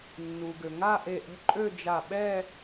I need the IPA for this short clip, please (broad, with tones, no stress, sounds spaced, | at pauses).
nː u˩ ɡ ø˩ ŋ a˥˧ ʔ e˧˩ ʔ ə̤˥˧ ǃʼ ø˥˧ d͡ʒ a˧˩ ɓ ɛ˥˧